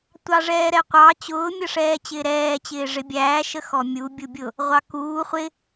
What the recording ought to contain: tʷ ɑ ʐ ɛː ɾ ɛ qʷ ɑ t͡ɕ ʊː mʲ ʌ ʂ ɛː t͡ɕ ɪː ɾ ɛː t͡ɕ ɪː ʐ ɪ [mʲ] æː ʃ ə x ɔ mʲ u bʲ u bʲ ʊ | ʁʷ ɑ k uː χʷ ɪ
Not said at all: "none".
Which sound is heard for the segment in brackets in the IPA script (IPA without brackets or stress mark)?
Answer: bʲ